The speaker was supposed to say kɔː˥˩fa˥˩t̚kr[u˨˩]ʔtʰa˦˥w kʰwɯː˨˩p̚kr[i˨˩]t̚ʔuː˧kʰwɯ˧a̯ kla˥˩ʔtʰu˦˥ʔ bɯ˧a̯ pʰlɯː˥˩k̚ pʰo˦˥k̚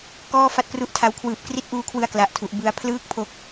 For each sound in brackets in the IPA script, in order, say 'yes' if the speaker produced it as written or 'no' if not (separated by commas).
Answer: no, no